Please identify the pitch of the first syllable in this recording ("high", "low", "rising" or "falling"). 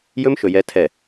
high